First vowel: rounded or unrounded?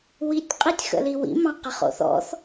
unrounded